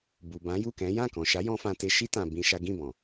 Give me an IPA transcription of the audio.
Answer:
b u˨ b ã˨˦ j u˦˨ k ɛ̃˨˦ j ã˦˨ k ɔ̃˨ ʃ a˨˦ j ɔ̃˧ f ã˧ t e˧ ʃ i˦ t ã˧ b ĩ˦ ʃ a˦ ɡ ĩ˦˨ b ɔ̃˨

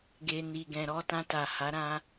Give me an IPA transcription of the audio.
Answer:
ɡ e˨ n i˨ ɡ ɛ̃˨ ɾ ɔ˧ t ã˧ t a˨ h a˨˦ ɾ ã˧

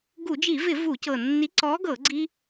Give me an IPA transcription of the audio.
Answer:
ɡ u˧˩˧ d͡ʒ i˧˩˧ v ɪ˧˩˧ v u˧˩˧ c ɤ˨˩ nː i˨˥ ǀ ɔ˨˥ ɡ ɤ˧˩˧ ɡ͡ǀ i˦

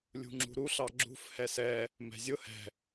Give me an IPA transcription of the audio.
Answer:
lʲ ṳ ŋ͡ǁ ṳ ɾ u ɬ ɑ ɡ͡ǁ ṳ f h ɛ s ɛ | m ɛ̤ zʲ ʊ h ɛ̤

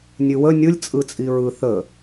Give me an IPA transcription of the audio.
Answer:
nʲ ʉ w ə nʲ ɯ lʲ t͡sʼ ɯ t͡sʼ i ɹ ɯ θ ə

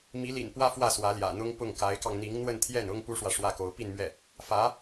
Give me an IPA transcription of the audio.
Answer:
m i˧˥ l ḭ˨˩ n p w ä˥ f w ä˥˩ s w ä˧˥ l j ä̰˨˩ n̪ ʊ˥ ŋ p ʊ˥˩ ŋ k a˧˥ ɪ̯ k ɑ˧ ŋ n̪ i˧˥ ŋ n̪ w ə˥˧ n t̪ʰ j ɛ˥˩ n ʊ˥ ŋ p u˥ ʂ w ä˨ ʂ w ä˥˩ k o˧˥ ʊ̯ p i˥˧ n m ɥ ɛ˥˩ | f ä˧˥

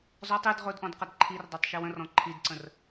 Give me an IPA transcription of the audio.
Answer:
z ɔ tˤ i d ʁ ʊ d ʔ ɔ̃ d q ə d ǃʰ i r dˤ o tˤ ʃ i w ə̃ r ɔ̃ ǃʰ i d ǀ ə̃ r

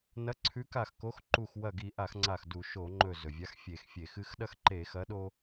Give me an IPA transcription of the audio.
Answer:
n ɐ˨˥ ǀʰ ʉ˨˥ k a˧˩ x k o˨˥ x ǃ u˧˩ x w ɐ˧˩ ɡ i˧˩˧ ʔ a˧˩˧ x ŋ͡ǀ a˧˩ x d u˧˩˧ ʃ o˧˩˧ ŋ͡ǃ ɵ˧˩ z ɵ˩ vʲ a˨˥ x fʲ e˧˩˧ x fʲ e˧˩˧ x ɨ˦ x ɗ ɐ˦ x ǃ e˧˩˧ x ɐ˨˥ ɗ o˦

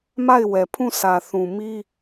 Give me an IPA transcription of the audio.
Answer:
m a˦˨ ɪ̯ w ɛ˨ pʰ ũ˦˨ s ä˨ θ ũ˨ m i˦

